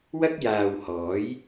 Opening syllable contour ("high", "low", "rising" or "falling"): high